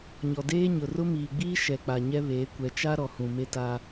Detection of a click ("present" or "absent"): absent